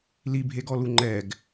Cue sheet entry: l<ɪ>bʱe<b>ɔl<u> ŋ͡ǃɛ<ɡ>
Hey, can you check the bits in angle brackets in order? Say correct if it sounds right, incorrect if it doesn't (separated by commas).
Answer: incorrect, incorrect, correct, correct